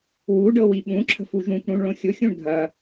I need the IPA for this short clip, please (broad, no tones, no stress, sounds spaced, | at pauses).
w u ɖ ɤ w i ɓ ũ ǁʰ ə̤ f u ʒ ũ kʷ ɽ ũ ɳ ɭ õ xʲ ʊ xʲ ũ ɳ dʱ ɐ